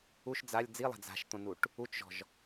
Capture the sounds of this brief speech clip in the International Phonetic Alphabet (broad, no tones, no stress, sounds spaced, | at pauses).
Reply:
u ʃ d͡z a lʲ d͡z i lˠ a̤ d͡z a̤ ʃ t̪ õ n u ʈ | u t͡ʃ ʒ ɔ̤ ʒ